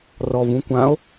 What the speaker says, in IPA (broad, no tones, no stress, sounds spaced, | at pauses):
r ɔ v ũ kʷ ã o̯